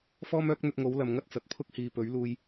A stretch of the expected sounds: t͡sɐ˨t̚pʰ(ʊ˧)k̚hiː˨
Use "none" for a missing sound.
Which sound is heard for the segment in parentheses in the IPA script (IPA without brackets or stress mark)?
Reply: ʊ˥